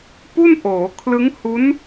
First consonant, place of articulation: labial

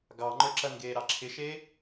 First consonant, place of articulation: velar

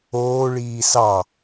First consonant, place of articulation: retroflex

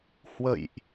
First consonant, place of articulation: glottal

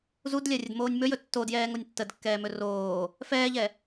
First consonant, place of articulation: alveolar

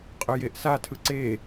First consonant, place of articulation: uvular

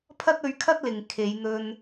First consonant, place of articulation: labial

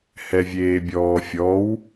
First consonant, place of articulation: glottal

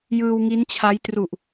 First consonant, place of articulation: palatal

